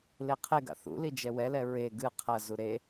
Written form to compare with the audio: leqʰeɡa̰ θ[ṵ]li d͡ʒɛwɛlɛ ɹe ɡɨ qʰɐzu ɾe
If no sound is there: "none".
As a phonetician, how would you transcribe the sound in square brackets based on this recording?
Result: ṵ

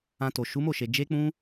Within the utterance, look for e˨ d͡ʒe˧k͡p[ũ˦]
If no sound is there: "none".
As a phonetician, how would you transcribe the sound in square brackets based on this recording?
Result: ũ˧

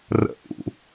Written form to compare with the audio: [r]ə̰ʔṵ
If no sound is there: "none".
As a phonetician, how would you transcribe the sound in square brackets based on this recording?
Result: r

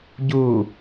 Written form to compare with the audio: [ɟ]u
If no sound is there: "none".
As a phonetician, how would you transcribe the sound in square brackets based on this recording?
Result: ɟ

